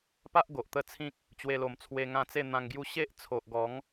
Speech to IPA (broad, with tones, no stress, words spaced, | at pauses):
pa˦ʔ ɡo˨ʔt̪ə˥˧t͡sʰĩ˦k̚ | t͡ɕwe˧lo˨˩m t͡sʰwe˧ŋã˧t͡se˥˧ n̪ã˧ŋɡju˥˧ ɕe˦ʔt͡sʰo˨ʔɡɔ˨˦ŋ